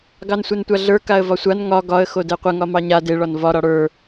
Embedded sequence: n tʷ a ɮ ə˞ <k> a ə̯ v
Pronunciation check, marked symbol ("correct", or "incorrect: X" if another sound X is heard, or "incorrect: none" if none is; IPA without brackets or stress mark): correct